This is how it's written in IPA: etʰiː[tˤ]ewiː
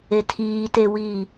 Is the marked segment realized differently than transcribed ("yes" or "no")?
yes